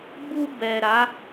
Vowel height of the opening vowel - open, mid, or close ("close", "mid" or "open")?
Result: close